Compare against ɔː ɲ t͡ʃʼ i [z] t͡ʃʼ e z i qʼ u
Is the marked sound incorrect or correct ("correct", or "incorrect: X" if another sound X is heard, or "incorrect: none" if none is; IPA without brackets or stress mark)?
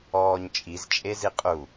correct